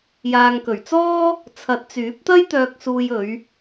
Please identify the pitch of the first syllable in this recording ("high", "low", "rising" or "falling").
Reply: low